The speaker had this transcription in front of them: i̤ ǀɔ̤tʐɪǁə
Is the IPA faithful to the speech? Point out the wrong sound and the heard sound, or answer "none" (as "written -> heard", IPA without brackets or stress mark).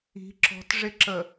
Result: ǀ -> ǁ